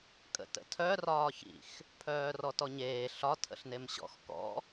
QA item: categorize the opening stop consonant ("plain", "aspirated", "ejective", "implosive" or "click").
ejective